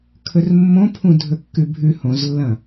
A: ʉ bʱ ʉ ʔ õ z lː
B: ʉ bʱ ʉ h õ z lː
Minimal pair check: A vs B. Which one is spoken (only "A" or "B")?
B